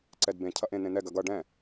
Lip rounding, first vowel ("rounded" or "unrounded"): unrounded